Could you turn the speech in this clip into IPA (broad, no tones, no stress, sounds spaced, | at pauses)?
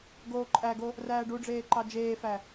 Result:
ɡ oː ǃʼ æ ɡ o | r æː ɖ u ɖ͡ʐ eː ǃ ɑ d͡ʒ eː f æ